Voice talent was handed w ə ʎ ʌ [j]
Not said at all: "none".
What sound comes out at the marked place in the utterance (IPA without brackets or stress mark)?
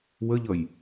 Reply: j